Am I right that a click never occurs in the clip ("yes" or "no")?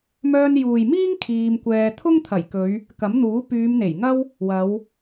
yes